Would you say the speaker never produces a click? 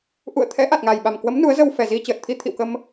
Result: yes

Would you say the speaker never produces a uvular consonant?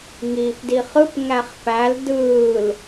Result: no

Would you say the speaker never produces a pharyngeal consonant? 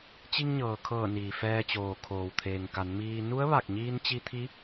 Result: yes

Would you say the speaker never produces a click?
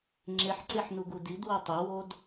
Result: no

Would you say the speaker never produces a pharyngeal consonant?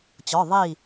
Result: yes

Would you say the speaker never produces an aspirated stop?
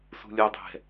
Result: yes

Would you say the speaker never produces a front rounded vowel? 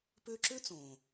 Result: no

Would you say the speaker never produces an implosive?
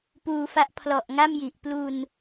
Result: yes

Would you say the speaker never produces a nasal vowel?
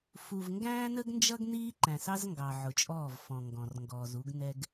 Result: no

